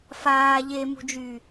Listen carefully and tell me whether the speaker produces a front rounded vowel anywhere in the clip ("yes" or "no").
yes